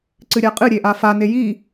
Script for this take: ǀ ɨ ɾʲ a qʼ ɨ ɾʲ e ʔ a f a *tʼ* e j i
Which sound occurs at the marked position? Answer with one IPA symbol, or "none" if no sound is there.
n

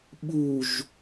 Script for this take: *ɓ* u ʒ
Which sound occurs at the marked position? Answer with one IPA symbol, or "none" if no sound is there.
ɓ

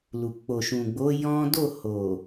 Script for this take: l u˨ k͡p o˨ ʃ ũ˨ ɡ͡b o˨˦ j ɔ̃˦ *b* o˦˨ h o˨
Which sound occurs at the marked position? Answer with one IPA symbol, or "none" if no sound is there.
d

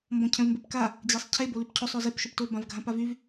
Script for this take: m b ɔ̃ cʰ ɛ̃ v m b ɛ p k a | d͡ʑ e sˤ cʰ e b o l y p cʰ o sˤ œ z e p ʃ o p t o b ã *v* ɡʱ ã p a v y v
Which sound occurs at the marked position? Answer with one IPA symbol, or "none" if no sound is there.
v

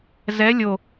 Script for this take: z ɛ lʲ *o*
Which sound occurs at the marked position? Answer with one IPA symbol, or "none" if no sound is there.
o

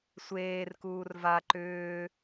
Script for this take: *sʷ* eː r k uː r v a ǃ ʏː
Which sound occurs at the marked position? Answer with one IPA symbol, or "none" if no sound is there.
sʷ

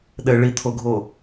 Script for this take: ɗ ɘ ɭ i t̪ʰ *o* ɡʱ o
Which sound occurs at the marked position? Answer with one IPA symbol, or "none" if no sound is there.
o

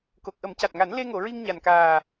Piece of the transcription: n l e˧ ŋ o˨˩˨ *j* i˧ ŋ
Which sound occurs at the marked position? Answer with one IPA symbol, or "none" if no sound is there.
ɹ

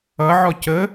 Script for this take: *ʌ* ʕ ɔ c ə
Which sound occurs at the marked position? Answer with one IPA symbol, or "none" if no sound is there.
ʌ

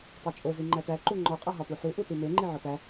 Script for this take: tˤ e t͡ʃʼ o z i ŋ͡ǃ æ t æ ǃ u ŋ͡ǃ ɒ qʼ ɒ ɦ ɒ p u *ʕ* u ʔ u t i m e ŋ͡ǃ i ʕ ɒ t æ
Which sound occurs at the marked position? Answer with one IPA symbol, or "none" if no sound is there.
ħ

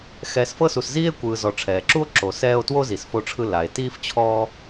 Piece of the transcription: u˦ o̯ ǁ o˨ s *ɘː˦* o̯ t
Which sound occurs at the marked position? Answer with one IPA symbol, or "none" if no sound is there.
ɛː˦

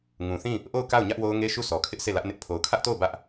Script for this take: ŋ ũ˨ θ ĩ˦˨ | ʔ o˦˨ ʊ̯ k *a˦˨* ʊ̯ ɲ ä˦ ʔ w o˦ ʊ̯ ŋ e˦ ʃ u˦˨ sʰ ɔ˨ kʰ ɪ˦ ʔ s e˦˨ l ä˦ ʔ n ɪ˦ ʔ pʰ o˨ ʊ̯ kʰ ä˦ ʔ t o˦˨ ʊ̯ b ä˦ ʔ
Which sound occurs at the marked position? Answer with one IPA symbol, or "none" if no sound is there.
a˦˨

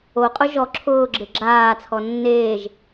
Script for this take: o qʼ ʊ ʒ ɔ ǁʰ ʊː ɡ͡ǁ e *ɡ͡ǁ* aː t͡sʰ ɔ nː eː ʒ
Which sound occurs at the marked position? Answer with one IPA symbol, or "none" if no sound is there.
ɡ͡ǁ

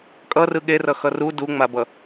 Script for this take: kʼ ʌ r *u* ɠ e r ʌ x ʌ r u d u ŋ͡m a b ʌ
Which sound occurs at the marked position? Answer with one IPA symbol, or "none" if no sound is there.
ɯ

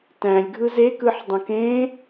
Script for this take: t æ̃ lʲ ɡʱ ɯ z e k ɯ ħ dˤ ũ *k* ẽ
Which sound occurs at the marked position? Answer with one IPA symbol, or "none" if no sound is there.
k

